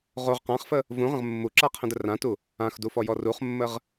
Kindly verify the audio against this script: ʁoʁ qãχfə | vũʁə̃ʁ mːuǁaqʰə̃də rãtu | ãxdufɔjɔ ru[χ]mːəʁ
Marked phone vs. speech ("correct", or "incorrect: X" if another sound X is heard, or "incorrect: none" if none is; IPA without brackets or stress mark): correct